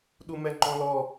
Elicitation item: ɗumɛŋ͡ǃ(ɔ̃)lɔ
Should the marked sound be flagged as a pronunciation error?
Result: no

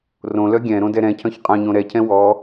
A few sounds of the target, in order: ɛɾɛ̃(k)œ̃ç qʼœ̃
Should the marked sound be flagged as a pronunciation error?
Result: yes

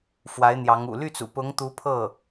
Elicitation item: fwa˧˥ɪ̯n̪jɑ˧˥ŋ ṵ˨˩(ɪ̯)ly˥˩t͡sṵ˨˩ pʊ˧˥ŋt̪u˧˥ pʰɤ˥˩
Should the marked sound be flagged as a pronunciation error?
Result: yes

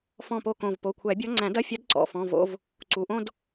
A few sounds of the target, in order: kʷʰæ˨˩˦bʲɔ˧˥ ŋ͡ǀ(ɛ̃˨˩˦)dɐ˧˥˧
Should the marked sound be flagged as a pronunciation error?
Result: yes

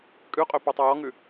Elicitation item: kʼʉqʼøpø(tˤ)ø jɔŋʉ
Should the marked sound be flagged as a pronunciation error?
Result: no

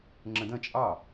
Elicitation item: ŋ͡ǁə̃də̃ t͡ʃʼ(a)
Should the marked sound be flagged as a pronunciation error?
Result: yes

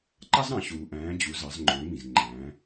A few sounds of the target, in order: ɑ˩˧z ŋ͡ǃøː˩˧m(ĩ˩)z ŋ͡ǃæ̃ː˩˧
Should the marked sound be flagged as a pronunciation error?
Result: no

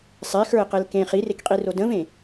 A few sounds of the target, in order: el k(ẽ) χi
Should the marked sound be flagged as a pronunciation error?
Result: no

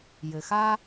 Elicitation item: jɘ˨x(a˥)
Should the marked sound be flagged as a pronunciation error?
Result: no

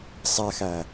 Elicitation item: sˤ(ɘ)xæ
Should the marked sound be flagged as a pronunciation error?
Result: yes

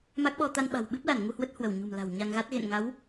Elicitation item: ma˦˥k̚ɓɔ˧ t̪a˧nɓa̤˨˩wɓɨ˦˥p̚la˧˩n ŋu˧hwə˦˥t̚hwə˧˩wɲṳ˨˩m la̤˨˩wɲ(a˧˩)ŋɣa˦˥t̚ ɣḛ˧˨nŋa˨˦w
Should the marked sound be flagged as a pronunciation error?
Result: yes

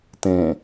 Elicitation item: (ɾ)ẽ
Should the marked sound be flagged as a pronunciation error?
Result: yes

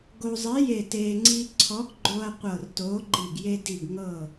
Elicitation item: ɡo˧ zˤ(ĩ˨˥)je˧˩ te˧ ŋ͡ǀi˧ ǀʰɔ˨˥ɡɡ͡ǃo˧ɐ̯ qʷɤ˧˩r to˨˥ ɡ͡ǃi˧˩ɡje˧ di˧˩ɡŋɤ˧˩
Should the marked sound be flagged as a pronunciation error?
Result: yes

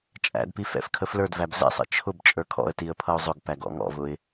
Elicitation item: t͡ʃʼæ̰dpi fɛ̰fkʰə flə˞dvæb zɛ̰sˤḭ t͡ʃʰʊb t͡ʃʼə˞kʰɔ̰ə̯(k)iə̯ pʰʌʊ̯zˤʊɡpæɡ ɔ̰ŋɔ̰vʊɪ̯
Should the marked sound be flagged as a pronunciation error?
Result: yes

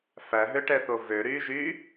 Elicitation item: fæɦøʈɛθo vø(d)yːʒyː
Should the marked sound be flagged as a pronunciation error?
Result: yes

